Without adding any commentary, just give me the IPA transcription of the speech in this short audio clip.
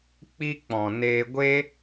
k͡p i˧ k͡p ɔ̃˨ n eː˧ ɡʷ e˦

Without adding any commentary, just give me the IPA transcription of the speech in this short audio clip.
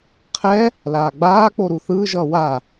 qʰ ɛ | l aː ɡ͡b aː k͡p o ɾ u θ ɯː ʒ ʌː w a

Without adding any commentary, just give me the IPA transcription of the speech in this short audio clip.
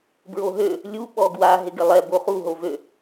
b ɹ o ɦ ø | lʲ u ɓ ɔ ɡ w a ɦ ɪ ɡ ɪ lˠ ɛ b o χ u ɦ o v ø

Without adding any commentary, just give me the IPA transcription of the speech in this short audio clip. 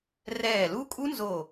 r ɛː˧˩ l u˦˥ kʼ u˦˥ n z o˧˩

